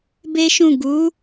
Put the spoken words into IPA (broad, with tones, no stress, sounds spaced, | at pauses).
b e˦ ʃ ũ˦˨ ɡ u˨˦